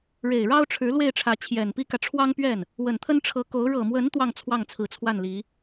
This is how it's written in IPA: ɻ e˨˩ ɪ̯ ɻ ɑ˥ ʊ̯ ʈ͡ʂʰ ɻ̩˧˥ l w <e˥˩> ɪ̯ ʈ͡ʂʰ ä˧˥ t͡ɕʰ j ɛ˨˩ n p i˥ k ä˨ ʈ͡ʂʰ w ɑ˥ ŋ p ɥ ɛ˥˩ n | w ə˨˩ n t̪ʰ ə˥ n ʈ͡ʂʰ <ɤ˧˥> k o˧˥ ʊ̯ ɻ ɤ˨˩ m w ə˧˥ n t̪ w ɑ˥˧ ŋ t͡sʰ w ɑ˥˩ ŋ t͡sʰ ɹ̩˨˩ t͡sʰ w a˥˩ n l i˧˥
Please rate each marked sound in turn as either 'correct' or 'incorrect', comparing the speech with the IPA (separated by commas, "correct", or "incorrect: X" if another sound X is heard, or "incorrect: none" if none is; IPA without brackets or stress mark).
correct, correct